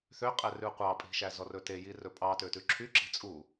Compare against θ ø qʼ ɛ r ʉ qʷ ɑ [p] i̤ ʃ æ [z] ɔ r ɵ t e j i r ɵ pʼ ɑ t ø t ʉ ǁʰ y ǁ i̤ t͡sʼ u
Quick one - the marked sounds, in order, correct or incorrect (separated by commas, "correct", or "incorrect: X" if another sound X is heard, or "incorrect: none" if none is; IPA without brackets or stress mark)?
incorrect: pʼ, correct